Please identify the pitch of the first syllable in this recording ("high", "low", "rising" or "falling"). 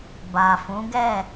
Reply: low